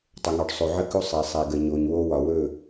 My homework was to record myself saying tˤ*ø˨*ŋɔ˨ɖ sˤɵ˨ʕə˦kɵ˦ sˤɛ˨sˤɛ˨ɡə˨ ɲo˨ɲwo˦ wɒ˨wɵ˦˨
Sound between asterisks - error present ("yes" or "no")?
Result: yes